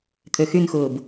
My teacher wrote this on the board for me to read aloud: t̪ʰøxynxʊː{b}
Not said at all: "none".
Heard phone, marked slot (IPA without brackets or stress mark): b